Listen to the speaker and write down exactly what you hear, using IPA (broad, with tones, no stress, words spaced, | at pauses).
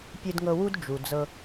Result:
pʲɨ˧dŋɤ˧wu˦d d͡ʒu˨d͡zɤ˧